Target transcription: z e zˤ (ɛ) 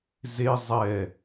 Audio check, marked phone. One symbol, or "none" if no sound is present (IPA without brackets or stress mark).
ɛ